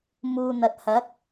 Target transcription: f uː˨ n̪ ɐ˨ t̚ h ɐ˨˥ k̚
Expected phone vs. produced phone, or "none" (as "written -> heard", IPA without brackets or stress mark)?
f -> m